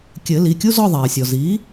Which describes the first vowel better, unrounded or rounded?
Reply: unrounded